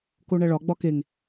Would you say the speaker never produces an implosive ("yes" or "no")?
yes